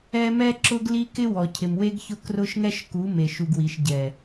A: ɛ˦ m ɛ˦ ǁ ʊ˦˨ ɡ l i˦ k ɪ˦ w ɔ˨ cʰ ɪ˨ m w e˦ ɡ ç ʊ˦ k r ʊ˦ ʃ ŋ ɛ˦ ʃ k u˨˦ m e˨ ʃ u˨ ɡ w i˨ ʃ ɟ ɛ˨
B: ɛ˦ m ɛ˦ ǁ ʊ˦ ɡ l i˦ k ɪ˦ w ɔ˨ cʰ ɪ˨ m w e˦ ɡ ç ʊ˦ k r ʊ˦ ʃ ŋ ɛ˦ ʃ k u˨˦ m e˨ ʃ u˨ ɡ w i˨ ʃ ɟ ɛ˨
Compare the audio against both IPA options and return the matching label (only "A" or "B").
B